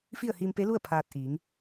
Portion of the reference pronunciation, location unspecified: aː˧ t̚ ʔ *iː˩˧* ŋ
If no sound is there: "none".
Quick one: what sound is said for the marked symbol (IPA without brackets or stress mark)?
iː˩˧